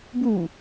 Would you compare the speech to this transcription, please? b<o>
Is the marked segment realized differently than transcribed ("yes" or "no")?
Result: yes